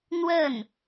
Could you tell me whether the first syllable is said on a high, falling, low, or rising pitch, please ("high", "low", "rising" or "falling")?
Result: falling